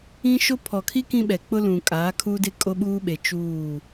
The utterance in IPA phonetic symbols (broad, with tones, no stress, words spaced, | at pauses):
ĩ˦ʃo˦ pʰɔ˨kʰi˦ kĩ˦ɓɛ˨ k͡pʊ˦lũ˨ kʼaː˨˦kʰuː˦de˦ kʼo˦ɓuː˦ɓe˨ t͡ʃuː˦˨